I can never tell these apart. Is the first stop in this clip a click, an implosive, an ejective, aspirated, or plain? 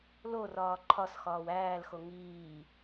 click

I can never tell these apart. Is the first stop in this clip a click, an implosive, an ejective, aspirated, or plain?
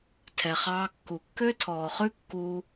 aspirated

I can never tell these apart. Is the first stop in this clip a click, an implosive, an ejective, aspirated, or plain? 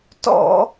plain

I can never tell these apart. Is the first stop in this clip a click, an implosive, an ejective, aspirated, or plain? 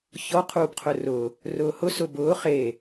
aspirated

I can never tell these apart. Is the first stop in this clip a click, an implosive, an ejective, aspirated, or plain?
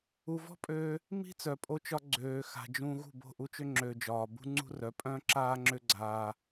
ejective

